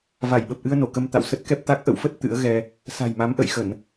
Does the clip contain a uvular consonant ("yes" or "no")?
no